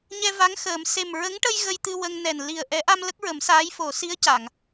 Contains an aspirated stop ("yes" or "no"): no